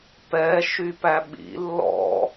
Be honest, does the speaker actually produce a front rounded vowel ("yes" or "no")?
yes